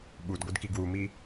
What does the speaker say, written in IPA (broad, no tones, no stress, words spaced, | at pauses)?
ɓudɡʷɨdki ɡwumi